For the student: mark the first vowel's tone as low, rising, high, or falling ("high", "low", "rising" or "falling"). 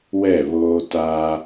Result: falling